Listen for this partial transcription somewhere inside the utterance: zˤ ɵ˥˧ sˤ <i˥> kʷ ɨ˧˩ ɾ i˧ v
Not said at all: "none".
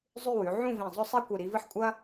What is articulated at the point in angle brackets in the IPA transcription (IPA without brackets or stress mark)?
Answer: e˥